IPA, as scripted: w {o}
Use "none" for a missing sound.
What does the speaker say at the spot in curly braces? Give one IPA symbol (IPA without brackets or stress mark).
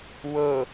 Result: ɤ